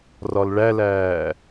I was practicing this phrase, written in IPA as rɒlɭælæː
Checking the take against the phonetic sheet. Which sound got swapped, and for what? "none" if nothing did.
none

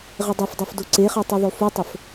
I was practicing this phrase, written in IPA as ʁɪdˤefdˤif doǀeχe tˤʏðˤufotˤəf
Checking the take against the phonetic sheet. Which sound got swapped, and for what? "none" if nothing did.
ʏ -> y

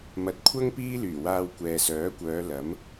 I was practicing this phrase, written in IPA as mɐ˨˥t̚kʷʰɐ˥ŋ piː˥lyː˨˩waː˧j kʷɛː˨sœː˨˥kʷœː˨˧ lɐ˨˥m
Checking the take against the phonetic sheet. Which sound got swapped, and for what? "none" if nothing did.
j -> w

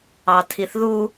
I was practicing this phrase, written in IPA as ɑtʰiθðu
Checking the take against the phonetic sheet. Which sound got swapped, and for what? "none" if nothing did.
none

